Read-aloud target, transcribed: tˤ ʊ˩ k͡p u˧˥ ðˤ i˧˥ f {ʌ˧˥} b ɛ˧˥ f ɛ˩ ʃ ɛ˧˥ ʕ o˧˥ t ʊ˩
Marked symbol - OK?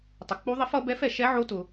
yes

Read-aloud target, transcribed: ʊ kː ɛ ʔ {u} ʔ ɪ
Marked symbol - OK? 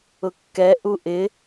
yes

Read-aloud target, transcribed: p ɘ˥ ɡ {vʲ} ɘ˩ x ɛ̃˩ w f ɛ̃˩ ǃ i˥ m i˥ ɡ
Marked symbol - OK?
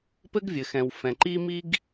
yes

